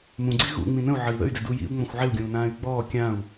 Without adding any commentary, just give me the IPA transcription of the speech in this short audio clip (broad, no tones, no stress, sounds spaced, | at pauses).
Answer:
m ũ ɡ͡ǀ i ɣ ṵ ŋ͡m ĩ n ə̃ u̯ ʕ ə i̯ ð ə̰ y̯ d ɪ d u j ḭ u̯ ŋ͡m ɔ̃ xʷ ʕ ɪ u̯ ɡʲ ũː n ãː y̯ ɡ͡b ɔː kʲ ã u̯